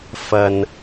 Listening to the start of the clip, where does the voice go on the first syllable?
low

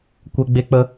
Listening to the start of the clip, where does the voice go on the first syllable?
high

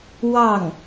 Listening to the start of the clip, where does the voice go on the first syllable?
falling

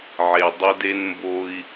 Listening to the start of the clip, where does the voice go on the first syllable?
low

